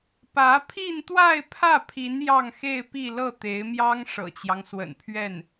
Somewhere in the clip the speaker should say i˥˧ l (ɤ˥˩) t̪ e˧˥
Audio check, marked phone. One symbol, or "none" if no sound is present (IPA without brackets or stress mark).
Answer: ɤ˥˩